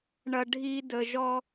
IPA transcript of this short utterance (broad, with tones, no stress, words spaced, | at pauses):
ɳɐ˧ ɖʱi˦ də˧ʒɔ˦